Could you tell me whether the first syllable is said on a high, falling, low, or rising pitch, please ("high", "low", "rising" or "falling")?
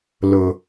low